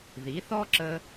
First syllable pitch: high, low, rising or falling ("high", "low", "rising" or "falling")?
rising